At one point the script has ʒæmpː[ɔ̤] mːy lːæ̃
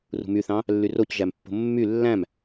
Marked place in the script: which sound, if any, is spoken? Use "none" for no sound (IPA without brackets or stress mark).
o̤